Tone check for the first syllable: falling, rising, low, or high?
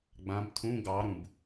rising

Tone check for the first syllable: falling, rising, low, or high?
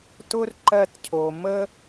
high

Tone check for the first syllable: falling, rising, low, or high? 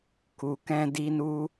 low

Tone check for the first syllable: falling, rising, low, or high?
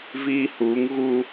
low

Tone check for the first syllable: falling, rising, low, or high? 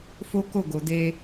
high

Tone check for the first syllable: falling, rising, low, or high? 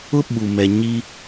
high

